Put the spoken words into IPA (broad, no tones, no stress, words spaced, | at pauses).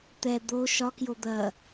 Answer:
t̪ɛ d̪o ʃɒkjo d̪ɐ